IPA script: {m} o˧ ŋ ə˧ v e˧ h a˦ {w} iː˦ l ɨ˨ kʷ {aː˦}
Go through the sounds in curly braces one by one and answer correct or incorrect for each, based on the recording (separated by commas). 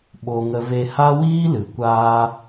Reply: incorrect, correct, correct